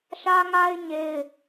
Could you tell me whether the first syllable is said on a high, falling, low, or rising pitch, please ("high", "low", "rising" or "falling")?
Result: high